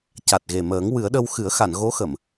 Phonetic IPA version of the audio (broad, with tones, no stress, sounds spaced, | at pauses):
c a˨˩ t̚ ɣ e˨˩ m əː˨˩˦ ŋ w ɨ˨˩˦ ə̯ ɗ ə˧ w x ɨ˨˩˦ ə̯ x a˨˩˨ n ɣ o˧˥ x ə˨˩˨ m